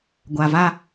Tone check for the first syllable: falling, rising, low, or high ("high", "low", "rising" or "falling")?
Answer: low